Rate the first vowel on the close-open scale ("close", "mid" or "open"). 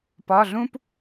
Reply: open